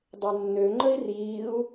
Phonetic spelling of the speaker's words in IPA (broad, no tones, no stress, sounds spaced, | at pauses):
dˤ e nː ø ŋ͡ǃ ə i̯ r iː u̯